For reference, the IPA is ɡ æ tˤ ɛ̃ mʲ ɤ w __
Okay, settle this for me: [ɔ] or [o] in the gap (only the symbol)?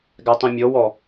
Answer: ɔ